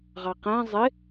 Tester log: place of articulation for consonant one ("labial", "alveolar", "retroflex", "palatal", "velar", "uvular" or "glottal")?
uvular